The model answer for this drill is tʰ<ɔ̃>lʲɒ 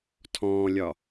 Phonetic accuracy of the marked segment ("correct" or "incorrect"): incorrect